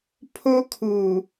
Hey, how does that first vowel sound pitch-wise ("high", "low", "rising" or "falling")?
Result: high